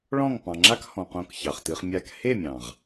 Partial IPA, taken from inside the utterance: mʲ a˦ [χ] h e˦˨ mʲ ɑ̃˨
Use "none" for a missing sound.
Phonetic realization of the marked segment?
k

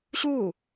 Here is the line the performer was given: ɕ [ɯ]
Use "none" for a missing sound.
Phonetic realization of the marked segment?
u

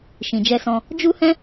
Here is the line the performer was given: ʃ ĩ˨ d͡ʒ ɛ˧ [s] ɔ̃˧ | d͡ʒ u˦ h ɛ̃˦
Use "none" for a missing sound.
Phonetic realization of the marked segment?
s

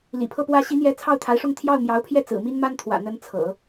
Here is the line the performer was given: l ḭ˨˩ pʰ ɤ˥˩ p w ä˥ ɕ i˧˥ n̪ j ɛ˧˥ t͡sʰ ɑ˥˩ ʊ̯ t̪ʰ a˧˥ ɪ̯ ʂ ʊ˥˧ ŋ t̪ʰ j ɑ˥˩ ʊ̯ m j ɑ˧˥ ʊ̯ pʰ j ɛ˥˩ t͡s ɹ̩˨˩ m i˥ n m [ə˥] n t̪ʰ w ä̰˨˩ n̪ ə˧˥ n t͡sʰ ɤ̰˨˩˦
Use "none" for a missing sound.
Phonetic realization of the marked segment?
a˥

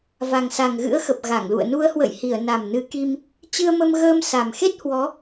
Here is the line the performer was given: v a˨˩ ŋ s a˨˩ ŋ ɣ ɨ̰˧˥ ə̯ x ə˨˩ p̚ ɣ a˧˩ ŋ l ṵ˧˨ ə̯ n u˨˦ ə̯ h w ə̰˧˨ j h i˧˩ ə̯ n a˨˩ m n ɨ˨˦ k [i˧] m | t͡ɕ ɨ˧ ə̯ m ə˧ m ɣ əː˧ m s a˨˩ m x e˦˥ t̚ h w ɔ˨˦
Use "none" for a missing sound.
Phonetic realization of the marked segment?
i˧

